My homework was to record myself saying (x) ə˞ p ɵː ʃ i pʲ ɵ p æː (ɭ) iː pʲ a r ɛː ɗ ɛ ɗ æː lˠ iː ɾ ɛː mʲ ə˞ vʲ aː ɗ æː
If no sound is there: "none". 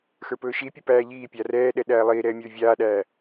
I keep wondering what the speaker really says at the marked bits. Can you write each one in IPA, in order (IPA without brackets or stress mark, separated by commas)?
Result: x, ʎ